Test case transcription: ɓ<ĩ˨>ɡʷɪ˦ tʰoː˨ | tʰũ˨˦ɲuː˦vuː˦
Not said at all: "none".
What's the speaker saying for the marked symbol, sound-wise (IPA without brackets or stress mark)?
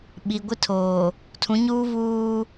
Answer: i˨